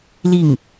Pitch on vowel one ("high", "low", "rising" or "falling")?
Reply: falling